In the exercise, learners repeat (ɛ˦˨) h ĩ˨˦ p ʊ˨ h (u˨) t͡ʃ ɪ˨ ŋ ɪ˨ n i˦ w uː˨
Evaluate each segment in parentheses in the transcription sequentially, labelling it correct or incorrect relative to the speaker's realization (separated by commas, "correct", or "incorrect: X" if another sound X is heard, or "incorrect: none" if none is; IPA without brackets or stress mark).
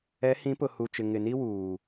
incorrect: ɛ˨˦, correct